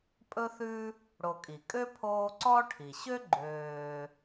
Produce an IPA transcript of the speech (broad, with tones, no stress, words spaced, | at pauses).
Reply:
pʼɵ˦θʉ˦ | ɽo˨kʼi˩kʼø˥pʰoː˦ ǀɔ˥ ʈʰi˩ɕø˥ ɡ͡ǃøː˨